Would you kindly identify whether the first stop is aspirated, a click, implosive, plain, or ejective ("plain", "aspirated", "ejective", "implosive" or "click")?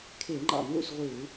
aspirated